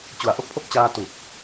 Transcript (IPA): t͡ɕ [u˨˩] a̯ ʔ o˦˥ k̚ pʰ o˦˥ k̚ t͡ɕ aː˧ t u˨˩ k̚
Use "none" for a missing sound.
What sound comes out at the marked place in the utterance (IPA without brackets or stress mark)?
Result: u˨˩